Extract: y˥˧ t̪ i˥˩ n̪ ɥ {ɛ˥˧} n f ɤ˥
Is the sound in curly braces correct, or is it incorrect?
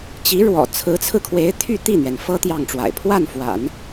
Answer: incorrect